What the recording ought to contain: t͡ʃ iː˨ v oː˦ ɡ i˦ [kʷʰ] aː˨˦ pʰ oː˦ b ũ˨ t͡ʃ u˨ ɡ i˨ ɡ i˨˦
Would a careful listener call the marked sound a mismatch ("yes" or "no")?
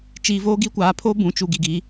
yes